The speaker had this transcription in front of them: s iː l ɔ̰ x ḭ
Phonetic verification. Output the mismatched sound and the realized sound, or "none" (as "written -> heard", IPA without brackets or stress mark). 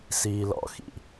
none